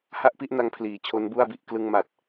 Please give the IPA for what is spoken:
h a˥˩ ʔ p i˥˩ ʔ n a˧ ŋ pʰ l iː˨˩ t͡ɕʰ o˦˥ n b u˥˩ a̯ b i˦˥ ʔ k l ɯ˧ ŋ m a˨˩ t̚

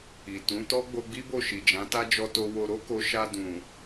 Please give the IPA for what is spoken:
i˨ t ũ˨˦ t ɔ˦ ɡ͡b o˧ ɡ͡b i˦ b o˦˨ ʃ i˨ d͡ʒ ã˨˦ t a˦ d͡ʒ ɔ˧ t o˧ w o˧ ɾ o˦ k o˧ ʃ a˧ d ũ˨

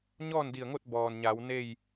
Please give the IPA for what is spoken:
ɲ ɔː˥˨ n d i˧˩ ə̯ ŋ o˥˨ t̚ b ɔː˩ n ɲ a˩˧ w n e˥˨ j

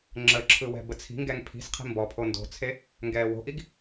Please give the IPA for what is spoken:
ŋ͡ǁ ə ǁʰ ɯ w ɛ̤ b ə t͡sʰ i̤ ŋ ɡ ɛ ŋ pʰ i̤ s qʰ i̤ m b ɔ pʰ o n d o̤ t͡sʰ e | ŋ ɡ ɛː w o̤ ʔ i ɡ

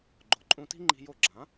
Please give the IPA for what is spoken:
ɡ͡ǃ o˩ ǃʼ ũ˧ t i̤˥ ŋ͡ǃ i̤˧ j o˥˩ ɡ͡ǁ ã˩˥

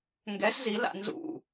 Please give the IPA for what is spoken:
ŋ ɡ ɛ s z i l a̰ n z ṵ

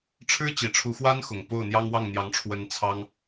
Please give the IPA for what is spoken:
ʈ͡ʂʰ ɻ̩˥ t͡ɕ i˨˩ ʈ͡ʂʰ u˧˥ x w a˥ n x ʊ˨˩ ŋ p o˥˩ ʊ̯ n̪ j ɑ˥ ŋ w ɑ˥˩ ŋ n̪ j ɑ˧˥ ŋ ʈ͡ʂʰ w ə˧˥ n t͡sʰ ɑ˥ ŋ

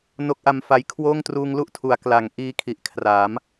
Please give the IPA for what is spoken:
n o˦˥ k̚ ʔ a˧ m f a˦˥ j kʰ w oː˥˩ ŋ t r uː˧ ŋ l u˥˩ ʔ tʰ u˩˦ a̯ k l a˩˦ ŋ ʔ iː˧ kʰ i˨˩ ʔ kʰ r a˩˦ m

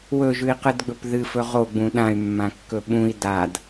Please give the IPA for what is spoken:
w ɵ ʒ ʉ i̯ q ɨ d ɡ͡b ɵ p ð ɨ f ɵ ʁ o ɡ͡b ũ ɗ ã y̯ mː ã kː ɵ ɓ ũ i̯ d a d

